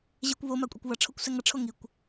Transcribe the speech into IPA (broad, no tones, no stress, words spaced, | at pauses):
ʑekʷβoma kʷʼekʷβʌʈ͡ʂʰokʷ sɛŋʌʈ͡ʂʰo ŋikʷ